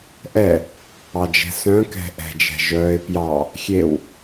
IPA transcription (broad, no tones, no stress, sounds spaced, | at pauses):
ʔ ɛ | ɑ d͡ʒ ɛ̤ s œ̃ k ɛ̤ ʔ ɛ̤ d͡ʒ ɛ̤ ʒ œː ɪ̯ p j ɑ | xʲ e w